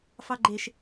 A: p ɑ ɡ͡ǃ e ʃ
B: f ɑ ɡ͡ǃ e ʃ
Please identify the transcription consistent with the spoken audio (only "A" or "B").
B